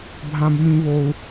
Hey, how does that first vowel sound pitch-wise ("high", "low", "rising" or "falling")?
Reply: high